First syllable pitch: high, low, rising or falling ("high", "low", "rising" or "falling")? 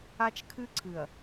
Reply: high